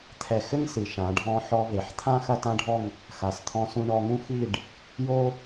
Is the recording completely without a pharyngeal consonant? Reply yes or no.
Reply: no